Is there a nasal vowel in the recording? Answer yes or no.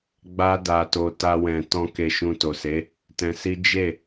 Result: yes